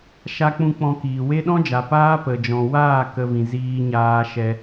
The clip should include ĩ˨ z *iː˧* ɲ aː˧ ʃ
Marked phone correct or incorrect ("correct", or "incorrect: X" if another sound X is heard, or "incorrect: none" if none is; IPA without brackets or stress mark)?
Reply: correct